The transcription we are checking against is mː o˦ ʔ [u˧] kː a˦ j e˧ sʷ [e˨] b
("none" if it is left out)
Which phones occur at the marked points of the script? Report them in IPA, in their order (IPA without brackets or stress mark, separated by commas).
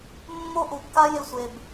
u˨, e˨